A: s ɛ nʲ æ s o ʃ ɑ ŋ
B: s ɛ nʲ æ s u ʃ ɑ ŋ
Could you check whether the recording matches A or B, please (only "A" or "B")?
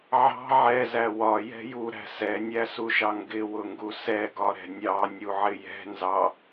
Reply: B